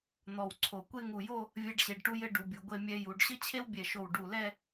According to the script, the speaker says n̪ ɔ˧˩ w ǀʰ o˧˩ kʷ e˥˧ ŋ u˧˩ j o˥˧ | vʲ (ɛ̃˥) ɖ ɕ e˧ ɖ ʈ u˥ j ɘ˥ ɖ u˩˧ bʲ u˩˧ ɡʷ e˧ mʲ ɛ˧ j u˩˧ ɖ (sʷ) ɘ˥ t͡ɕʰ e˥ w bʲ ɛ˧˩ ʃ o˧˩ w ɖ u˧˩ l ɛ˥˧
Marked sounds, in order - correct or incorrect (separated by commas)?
incorrect, incorrect